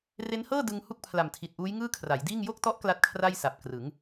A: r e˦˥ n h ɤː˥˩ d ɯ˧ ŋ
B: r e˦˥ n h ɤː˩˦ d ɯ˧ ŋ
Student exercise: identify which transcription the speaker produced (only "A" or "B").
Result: A